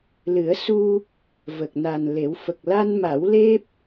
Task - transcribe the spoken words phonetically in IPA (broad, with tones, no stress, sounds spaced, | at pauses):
l ɨ˨˩˦ ə̯ s u˧ | v ə˨˩ k̚ n a˨˩ n l e˨˩˦ w f ə˨˩ k̚ l a˧ n m a˨˩˦ w l e˦˥ p̚